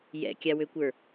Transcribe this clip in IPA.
j ɛ̰ kʲ a w ø kʷ ə˞

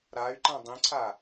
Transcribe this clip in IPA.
ɾ a y̯ ǃ ã dˤ ĩ ǀʰ a

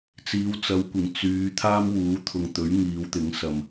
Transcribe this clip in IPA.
t͡s iː˨˧ w t͡s ɐ˨˧ w kʷ ɪ˨˩ ŋ t͡s yː˨˧ t̪ʰ aː˥ m w uː˨˥ t̪ʰ ʊ˨ ŋ t̪ ɵ˨˥ ɥ ŋ iː˨˧ w t̪ ɪ˨˥ ŋ s ɐ˨ m

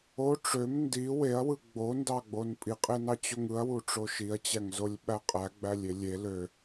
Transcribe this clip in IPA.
o ʈ͡ʂ ø m n d i w e ɐ̯ w ɯ ɡ͡b o n d ɑ ɡ͡b o n pʼ i qʼ e n ɑ t͡ɕ o ŋ ɯ ɐ̯ w u ʈ͡ʂ o ʃ i ɐ̯ t͡ɕ æ ŋ z o lʲ ɓ æ qʼ æ ɡ͡b æ lʲ e lʲ e l ø

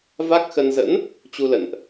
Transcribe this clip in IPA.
v a˦˥ k̚ x ə˧ n z ə̰˧˥ n | t͡ɕ u˧ l ə̰˧˨ n ʔ

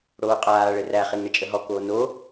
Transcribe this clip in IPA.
ɽ oː qʼ aː ɭ ɘ r æ χ e ŋ ɳ ə t͡ʃʼ ə ɦ ɔ k oː n o

